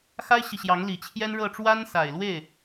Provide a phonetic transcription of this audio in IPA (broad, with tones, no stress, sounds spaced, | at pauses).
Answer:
x a˥ ɪ̯ ɕ i˨ ɕ j ɑ˧˥ ŋ l i˨˩ t͡ɕʰ j ɛ˥ n ɻ ɤ˥˩ ʈ͡ʂ w a˥ n s a˨˩ ɪ̯ l w e˥˩ ɪ̯